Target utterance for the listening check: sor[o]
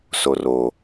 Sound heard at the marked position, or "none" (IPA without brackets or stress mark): o